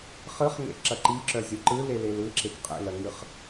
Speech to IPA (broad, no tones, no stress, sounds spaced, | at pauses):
χ ɯ χ ŋ ḛ ǁ ɐ ǃ i ǁ œ zʲ o ǃ ɯ l e l e l ɯ ǁ e k qʼ ḛ l ɐ ŋ ɯ χ